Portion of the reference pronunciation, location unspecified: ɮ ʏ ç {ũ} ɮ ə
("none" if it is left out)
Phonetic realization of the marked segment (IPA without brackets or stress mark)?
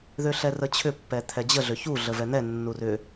u